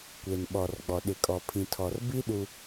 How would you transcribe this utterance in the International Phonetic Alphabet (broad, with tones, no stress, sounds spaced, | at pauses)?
kʷ e˨ n ɓ ɔ˨ r ɡ͡b ɔ˨ ɗ ɪ˨ kʼ ɔ˨ pʰ ĩ˨ tʰ ɔ˨ r b i˦ ɗ u˦